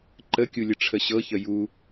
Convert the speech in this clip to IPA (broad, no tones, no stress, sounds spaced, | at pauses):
ǃ ə kʲ u lʲ ə ʈ͡ʂʰ ə ɕ ɤ ç ə j u